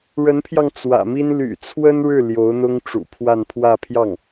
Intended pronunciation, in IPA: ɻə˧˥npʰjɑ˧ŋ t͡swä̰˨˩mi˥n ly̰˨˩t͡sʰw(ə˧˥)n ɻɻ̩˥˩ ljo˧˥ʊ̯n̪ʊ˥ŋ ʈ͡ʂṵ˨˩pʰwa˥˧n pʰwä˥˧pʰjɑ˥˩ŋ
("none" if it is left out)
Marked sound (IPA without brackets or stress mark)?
ə˥